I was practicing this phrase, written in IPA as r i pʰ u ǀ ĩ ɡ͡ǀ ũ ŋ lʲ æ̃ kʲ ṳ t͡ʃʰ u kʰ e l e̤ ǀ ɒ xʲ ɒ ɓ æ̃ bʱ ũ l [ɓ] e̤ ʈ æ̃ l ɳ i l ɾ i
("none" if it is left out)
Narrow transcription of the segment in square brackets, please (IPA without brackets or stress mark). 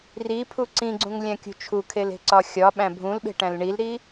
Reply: ɓ